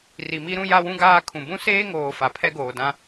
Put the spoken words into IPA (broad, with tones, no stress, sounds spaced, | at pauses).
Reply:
r i˨ m i˦ ɾ ũ˦ j a˦ w ũ˦ ɡ aː˦ kʰ ũ˨ b ũ˦ s eː˦ ŋ oː˨ f a˨ pʰ ɛ˦ ɡ oː˨ d ã˦